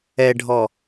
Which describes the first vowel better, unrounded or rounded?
unrounded